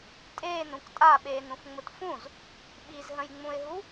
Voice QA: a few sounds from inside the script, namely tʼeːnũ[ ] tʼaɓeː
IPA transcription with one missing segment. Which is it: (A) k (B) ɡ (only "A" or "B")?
A